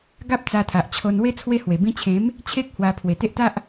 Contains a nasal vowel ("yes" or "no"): yes